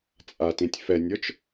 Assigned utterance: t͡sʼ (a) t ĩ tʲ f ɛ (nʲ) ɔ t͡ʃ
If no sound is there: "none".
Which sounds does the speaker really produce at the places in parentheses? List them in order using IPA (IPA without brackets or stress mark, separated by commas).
a, nʲ